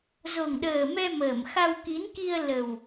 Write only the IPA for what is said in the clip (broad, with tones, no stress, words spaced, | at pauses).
zo˨˩ŋɗəː˨˩mɛ˧ məː˧˩m xa˧wki˨˦n ki˧ə̯ lə˨˩w